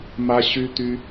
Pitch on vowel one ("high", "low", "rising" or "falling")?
high